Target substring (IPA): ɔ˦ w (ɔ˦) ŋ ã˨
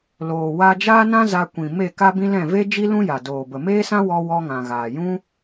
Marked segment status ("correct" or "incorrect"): correct